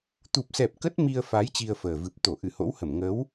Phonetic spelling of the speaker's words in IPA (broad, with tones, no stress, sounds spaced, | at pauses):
t̪ u˨˩ p̚ s ɛ˨˩ p̚ k ə˦˥ t̚ m i˧ ə̯ f a˨˦ j t͡ɕ i˧ ə̯ f əː˨˩ v ɨ˨˩ p̚ t̪ o˧˩ ʔ ɨ˧˩ h o̰˧˥ w h ə˧˩ m ŋ ə˨˦ w